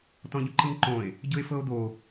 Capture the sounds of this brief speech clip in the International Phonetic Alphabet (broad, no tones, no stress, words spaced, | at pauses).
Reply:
tɔ̃ʎʊǃɯŋǃõe̯ | ɟʊe̯fɤo̯d̪o